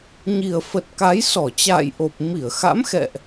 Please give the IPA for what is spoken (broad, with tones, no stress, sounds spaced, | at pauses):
ɲ i˨˩ ə̯ f ə˨˩ t̚ k a˨˦ j s ɔ˧˩ t͡ɕ a̰ː˧˨ j ʔ o˨˩ p̚ m i˧˩ ə̯ x a̰˧˥ m x ɛ̰˧˨ ʔ